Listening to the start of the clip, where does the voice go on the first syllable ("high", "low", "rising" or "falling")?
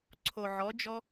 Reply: low